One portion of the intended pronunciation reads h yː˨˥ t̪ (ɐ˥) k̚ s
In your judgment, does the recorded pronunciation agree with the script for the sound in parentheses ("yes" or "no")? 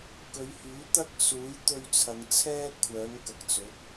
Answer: yes